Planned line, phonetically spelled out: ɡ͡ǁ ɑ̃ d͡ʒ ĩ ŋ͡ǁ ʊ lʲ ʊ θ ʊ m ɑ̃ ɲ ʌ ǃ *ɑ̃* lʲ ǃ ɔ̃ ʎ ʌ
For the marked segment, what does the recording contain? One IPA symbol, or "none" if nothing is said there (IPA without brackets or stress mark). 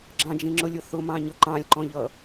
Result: ɑ̃